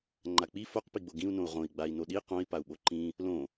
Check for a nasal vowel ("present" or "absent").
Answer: present